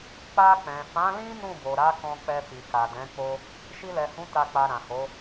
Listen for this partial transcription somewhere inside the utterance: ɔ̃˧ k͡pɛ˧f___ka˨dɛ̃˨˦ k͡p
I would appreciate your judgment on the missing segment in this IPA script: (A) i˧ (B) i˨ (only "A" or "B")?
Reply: B